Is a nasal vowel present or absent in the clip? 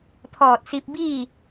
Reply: absent